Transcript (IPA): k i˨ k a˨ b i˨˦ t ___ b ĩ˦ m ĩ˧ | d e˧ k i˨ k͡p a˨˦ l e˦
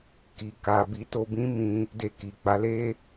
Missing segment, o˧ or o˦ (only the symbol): o˧